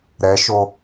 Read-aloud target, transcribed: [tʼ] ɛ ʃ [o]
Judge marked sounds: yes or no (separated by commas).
no, yes